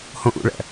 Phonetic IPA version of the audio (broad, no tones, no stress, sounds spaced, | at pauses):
h õ ʔ ṵ ɭ æ̰